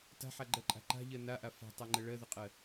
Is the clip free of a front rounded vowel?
yes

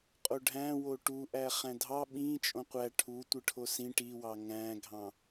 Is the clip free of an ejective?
no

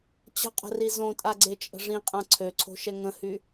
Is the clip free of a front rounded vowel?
no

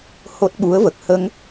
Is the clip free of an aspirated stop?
yes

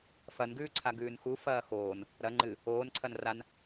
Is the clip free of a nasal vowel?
yes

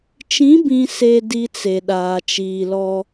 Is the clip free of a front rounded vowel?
yes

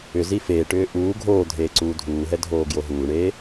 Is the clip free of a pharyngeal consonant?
yes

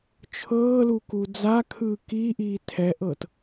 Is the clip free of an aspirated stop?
no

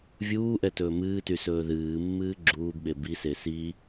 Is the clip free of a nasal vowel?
yes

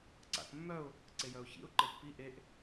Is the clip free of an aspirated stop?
yes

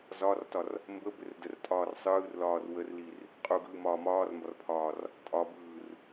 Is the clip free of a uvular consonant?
no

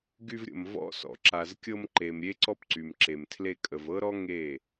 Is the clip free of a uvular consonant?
yes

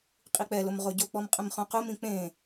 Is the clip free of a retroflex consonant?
yes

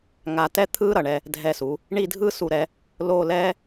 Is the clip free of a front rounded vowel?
yes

